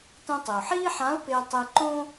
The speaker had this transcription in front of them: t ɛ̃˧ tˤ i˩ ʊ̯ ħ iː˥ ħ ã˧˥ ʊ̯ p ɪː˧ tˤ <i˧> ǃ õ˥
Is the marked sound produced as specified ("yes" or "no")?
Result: yes